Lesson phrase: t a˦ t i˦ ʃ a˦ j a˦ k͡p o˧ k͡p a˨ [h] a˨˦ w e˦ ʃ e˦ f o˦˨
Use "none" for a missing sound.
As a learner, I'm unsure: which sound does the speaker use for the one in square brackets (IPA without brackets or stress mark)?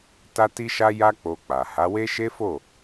h